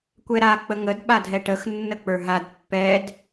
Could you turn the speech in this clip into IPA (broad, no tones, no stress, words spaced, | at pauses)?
kʷɛɾa k͡pəŋəd ɓadʱɛʈəx nːək͡pə˞ɦad pːɛd